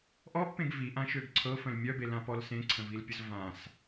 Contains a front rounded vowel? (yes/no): yes